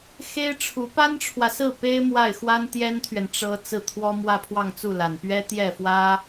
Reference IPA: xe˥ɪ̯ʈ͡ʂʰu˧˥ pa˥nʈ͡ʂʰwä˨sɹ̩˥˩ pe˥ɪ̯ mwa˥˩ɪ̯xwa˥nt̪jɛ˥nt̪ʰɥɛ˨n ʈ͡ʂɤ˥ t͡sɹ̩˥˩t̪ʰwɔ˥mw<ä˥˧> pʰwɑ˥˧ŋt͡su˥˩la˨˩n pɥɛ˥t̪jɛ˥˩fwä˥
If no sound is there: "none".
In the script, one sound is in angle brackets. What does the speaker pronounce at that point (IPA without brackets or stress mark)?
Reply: ä˥˧